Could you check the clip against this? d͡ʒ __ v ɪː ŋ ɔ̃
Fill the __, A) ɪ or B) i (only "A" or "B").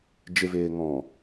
A